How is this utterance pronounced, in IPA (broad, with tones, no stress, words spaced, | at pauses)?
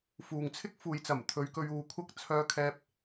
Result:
fuː˨ŋt͡sʰɪ˥k̚ fuː˨jt͡sɐ˨˩m t̪ʰɵ˨˧ɥkɵ˧ɥ uː˨˧kʷʰɐ˥k̚ t͡sʰœː˧kʰɛː˧p̚